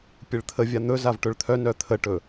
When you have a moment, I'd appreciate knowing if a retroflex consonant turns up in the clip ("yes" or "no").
yes